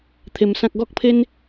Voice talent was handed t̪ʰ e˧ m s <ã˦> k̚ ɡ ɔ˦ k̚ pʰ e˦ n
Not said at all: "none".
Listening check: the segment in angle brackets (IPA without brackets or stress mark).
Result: ã˦